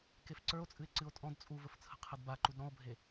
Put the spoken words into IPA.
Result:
k e f ǀ ə˞ o̯ t͡sʼ ɨ e̯ ǀ ɨ o̯ tʼ ɔ̃ d t͡sʼ u v ə f t͡sʰ ə̤ qʰ ɘ d b a ǃ u d ɾ ɔ̃ o̯ bʱ e

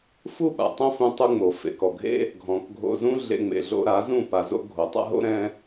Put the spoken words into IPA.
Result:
f u˦˨ ɓ a̰˨ tˤ õ˦ f ũ˧ tˤ u˧ ŋ͡m o˨ f ḛ˨ k ɔ˨ ɡʱ ḛ˦ | ɡʱ ɔ̃˨ k ɡʱ o̰˧ z ũ˦ ɮ ḛ˧ ŋ͡m ḛ˨ ɮ o̰˧ ɾ a˨˦ z ũ˦˨ p a˧ z o̰˦ ɡʱ o˨ tˤ a̰˦ ɦ o̰˦ ɾ ɛ̃˦

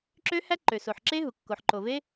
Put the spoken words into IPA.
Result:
ǁ ø˦˥ h æ˦˥ ǃ ø˩ s o˩ ħ ǁ e˦˥ ɦ u˩ kː o˩ ħ ǃ o˩ v e˦˥

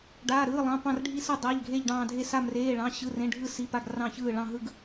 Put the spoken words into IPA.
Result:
ɖ aː˩˧˩ ɾ ɯː˩˧˩ lˠ ɑ̃˩˧˩ p ɑ̃˧˩ r ɖʱ i˧˩ s ɯ˧˩ dˤ a˩˧˩ ʎ ɡʱ e˧˩ ʎ ɖ ɑ̃ː˧˩ dʱ e˧˩ s a˧˩ m r eː˩˧˩ ɭ ɑ̃˩˧˩ ɕ ɯ˩˧˩ r ẽ˩˧˩ ɖʱ ɯ˧˩ s i˩˧˩ p a˧˩ ɡ r ɑ̃˧˩ ç ɯː˧˩ ɭ ɑ̃˧˩ ɦ ɯ˧˩ ɡ

